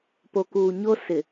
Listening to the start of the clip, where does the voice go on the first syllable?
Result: low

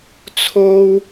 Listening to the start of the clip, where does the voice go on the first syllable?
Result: high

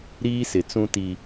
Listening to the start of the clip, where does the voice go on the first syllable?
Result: high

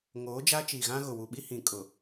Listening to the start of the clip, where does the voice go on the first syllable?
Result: rising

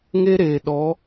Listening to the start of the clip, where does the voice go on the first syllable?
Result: high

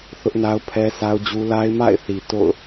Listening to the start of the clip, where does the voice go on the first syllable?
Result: high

